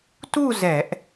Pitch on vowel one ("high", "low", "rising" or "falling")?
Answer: falling